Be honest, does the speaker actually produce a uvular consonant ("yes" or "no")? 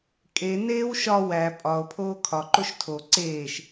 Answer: no